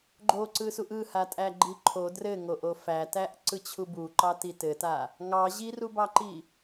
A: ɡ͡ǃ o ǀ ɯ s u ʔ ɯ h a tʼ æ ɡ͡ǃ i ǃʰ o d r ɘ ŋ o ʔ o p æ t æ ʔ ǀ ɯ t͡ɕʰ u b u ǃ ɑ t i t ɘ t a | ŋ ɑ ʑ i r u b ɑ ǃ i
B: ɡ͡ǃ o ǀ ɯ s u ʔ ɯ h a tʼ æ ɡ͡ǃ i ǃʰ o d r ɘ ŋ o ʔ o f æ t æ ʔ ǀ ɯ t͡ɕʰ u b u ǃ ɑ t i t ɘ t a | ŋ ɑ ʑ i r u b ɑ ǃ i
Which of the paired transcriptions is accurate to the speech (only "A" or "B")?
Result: B